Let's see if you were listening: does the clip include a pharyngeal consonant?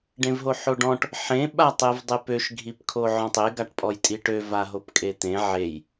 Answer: yes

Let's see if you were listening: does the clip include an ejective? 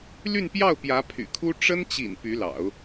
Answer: no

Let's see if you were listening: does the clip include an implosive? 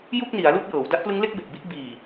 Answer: no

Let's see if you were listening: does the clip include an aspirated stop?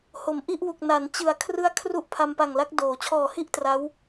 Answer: yes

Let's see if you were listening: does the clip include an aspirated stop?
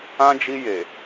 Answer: no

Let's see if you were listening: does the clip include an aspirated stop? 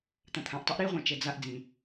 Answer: yes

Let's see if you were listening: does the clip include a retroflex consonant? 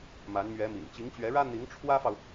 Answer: yes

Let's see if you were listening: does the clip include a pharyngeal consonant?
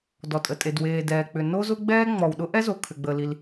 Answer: no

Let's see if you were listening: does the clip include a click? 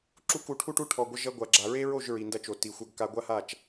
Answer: yes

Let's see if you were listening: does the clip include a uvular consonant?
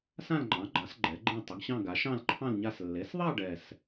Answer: no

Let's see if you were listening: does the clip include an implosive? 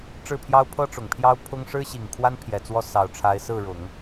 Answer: no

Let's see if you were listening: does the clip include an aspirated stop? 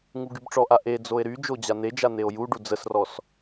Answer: no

